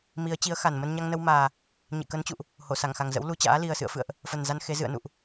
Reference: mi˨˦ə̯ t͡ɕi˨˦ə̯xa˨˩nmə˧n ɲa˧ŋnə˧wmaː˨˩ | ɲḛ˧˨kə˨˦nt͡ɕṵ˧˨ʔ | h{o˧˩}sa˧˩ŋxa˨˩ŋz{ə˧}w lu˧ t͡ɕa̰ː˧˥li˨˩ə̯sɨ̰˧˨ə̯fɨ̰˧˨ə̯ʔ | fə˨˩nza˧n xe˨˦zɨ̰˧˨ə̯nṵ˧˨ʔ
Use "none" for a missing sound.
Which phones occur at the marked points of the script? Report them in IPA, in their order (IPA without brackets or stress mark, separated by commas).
o˧˩, ə̰˧˥